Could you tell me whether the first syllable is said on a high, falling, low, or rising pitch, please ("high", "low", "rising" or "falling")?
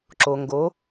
low